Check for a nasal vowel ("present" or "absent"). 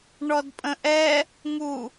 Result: present